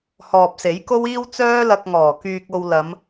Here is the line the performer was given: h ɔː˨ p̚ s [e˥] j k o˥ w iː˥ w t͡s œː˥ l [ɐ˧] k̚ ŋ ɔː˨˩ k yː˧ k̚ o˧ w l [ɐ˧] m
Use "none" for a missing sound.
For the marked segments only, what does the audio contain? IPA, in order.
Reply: e˨˥, ɐ˧, ɐ˨˧

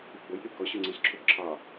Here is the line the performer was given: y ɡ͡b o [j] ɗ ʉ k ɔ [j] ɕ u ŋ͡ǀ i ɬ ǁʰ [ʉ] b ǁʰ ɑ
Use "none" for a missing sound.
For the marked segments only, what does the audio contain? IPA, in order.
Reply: j, none, u

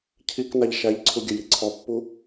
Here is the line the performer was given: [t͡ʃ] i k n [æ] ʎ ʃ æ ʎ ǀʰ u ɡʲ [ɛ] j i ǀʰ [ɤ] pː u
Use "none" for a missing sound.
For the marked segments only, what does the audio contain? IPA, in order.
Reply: cʰ, a, ɘ, ɔ

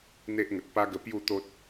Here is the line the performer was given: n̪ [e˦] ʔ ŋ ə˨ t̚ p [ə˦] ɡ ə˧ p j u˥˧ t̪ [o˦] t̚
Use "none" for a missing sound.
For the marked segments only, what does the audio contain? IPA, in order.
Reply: e˦, a˦, o˦

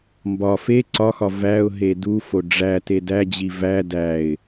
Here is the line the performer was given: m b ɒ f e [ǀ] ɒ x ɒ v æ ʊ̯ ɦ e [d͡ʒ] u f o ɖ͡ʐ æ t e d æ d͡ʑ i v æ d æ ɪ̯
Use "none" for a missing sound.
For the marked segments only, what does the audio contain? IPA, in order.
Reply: ǀ, d

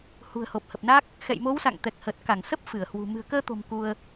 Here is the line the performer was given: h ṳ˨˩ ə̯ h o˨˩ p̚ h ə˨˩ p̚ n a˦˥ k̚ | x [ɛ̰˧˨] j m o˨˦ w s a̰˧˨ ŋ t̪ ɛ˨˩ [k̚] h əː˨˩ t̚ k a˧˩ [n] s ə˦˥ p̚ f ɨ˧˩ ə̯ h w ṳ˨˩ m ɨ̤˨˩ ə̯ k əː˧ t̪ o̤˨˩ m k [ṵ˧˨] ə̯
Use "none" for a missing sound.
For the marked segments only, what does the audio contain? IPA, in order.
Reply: ɛ̰˧˨, k̚, ŋ, u˧

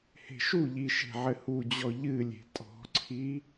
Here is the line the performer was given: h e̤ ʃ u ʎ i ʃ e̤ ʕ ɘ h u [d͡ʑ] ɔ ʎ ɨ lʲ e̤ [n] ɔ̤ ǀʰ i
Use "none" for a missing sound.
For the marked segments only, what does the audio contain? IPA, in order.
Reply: d͡ʑ, tʼ

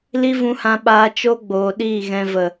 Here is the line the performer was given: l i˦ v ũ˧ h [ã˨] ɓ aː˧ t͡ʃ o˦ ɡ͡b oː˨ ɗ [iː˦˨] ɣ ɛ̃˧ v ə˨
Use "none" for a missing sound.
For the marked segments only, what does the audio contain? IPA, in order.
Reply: ã˧, iː˦˨

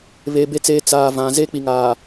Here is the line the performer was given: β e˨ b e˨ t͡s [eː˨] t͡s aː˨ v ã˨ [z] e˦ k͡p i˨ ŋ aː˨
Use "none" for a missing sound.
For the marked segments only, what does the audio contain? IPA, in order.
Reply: eː˨, z

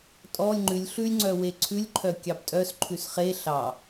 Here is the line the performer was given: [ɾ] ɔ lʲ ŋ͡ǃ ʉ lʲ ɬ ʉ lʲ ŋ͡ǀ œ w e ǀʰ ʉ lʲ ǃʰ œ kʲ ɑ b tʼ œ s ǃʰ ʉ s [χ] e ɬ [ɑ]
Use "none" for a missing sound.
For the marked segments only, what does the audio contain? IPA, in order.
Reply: tʼ, χ, ɑ

